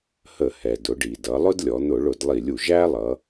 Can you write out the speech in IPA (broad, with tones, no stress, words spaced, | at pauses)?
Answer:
hə˧˩˧hɛ˩ dʊ˩˧ɖi˩dʌ˩˧ lˠʊ˥dlʲɔ˩˧n̪ʊ˧˩˧ɭʊ˧˩˧d lˠi˧˩˧lʲu˩ ʒæ˥lˠʌ˩˧